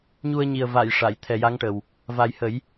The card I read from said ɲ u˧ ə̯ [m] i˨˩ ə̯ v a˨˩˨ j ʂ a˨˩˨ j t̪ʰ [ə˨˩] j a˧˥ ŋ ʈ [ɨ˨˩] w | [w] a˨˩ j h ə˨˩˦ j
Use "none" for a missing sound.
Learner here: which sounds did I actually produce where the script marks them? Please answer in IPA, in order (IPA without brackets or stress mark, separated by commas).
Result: ɲ, ɛ˨˩, ə˨˩, v